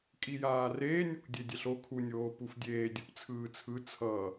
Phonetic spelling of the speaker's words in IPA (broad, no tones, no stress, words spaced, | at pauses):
kʼijaːreː nʲɛkʷdʲedʲɛɬo kʰunʲ oːpufdʲeː dʲɯpt͡sʰɯːt͡sʰɯ t͡sʰʌ